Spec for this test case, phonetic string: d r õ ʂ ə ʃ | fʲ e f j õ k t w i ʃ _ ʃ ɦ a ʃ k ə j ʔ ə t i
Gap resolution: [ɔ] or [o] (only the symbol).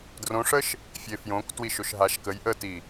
o